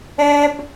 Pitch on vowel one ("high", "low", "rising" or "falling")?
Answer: high